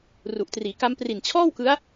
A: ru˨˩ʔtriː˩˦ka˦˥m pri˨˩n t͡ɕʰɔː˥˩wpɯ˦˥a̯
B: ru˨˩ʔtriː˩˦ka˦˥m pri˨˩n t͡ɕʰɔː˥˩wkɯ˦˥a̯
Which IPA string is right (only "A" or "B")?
B